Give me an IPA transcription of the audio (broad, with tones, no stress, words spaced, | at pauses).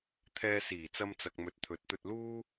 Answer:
t̪ʰɛː˧siː˨˩ t͡sɐ˧mt͡sɐ˨k̚ mɵ˨˥t̚t̪ʰɵ˨˥t̚t̪ɵ˧t̚ luː˥